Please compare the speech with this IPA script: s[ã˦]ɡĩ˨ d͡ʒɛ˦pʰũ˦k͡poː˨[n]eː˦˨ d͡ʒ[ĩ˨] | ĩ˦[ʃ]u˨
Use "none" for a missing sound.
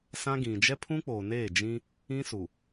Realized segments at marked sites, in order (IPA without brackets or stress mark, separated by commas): ã˦, n, ĩ˦, s